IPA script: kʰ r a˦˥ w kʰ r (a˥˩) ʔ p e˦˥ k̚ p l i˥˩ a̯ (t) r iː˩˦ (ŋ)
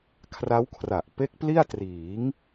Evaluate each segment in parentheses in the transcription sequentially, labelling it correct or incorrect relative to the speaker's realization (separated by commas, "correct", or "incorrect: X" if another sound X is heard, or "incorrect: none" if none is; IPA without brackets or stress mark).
incorrect: a˨˩, correct, correct